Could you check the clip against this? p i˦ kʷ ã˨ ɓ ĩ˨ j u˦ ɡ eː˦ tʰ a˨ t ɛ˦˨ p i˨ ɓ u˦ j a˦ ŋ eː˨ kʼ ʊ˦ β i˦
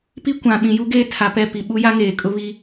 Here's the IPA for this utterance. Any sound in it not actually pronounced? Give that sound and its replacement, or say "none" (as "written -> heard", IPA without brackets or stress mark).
t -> p